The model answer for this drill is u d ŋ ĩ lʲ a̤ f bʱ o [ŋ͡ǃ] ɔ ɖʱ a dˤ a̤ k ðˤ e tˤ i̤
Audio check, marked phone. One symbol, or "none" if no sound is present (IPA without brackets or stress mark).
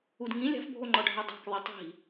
ŋ͡ǃ